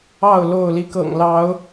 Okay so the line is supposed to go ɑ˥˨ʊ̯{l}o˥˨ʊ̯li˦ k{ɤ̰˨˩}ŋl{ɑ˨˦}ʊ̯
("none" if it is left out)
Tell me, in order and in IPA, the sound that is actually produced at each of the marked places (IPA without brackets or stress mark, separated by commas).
l, ɤ̰˨˩, ɑ˨˦